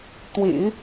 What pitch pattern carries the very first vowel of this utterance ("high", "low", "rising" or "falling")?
low